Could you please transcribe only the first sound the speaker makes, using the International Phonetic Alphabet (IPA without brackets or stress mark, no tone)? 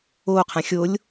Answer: o